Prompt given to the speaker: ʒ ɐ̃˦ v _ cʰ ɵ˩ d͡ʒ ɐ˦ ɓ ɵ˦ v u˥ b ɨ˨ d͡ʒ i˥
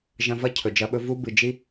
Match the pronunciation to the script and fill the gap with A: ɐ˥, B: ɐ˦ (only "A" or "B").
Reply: A